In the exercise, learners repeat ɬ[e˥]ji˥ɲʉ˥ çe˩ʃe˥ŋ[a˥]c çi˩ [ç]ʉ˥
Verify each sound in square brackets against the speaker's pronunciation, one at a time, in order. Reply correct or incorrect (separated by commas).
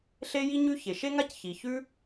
correct, correct, correct